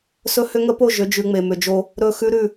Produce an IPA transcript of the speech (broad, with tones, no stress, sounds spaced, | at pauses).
s ɵ˦ h ʏ˦ ŋ ə˦ p o˦˨ ʒ ʏ˨˦ d͡ʒ ʉ˨ ŋ͡m e˨ m ʏ˨ d͡ʒ o˦ | ɾ ɵ˦˨ x ʉ˦ ɾ ʉ˦˨